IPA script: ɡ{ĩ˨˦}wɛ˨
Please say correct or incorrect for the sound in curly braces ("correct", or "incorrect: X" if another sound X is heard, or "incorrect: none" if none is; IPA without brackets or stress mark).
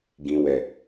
incorrect: ĩ˨